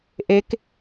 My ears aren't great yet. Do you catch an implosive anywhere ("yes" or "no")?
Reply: no